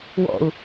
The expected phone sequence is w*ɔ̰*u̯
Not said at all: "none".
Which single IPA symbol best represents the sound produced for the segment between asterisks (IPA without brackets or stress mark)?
ɔ̰